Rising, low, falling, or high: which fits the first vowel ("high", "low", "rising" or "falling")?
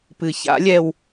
low